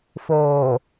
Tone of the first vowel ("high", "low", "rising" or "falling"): low